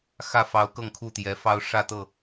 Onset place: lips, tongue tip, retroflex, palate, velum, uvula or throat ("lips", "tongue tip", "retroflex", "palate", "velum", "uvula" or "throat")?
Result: velum